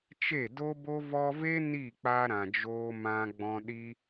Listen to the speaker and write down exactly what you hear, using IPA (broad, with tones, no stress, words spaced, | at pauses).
t͡ʃe˦˨do˦bo˦ vɔ˧ve˦ ni˦˨k͡pa˧ ɾã˨ d͡ʒoː˧mã˧ɡ͡bɔ̃˧ ɗi˧